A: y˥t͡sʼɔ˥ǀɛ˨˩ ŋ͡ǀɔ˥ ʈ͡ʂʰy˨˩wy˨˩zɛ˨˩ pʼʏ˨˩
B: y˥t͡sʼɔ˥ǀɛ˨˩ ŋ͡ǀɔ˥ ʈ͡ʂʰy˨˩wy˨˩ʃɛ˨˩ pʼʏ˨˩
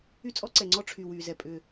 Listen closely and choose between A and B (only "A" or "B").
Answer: A